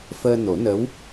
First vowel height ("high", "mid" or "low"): mid